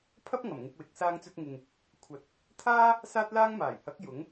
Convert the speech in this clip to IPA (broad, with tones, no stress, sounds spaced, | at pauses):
pʰ ɐ˥ p̚ ŋ ɐ˨˩ m ŋ ɪ˧ k̚ w ɪ˨˥ k̚ s aː˧ ŋ t͡s ɵ˧ t̚ ŋ ɪ˨ ŋ | kʷʰ ɐ˨˥ t̚ | t̪ʰ aː˥ | s aː˥ t̚ l aː˥ ŋ m aː˨˩ j h ɐ˨˥ k̚ j ʊ˨˥ ŋ